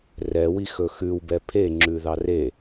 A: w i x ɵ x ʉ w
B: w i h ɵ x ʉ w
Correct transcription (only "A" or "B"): A